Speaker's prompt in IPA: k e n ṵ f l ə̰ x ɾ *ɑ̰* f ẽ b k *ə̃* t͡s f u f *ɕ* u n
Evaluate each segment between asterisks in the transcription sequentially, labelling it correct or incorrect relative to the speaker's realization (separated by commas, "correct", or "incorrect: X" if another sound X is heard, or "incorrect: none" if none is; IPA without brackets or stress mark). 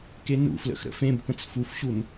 incorrect: ə̰, correct, correct